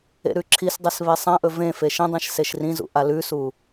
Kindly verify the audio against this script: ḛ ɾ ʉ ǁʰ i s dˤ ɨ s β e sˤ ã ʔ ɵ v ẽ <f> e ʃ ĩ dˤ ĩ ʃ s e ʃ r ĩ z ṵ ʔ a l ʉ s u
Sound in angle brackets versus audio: correct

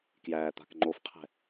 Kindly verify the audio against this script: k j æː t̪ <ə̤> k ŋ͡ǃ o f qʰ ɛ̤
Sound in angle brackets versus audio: incorrect: a̤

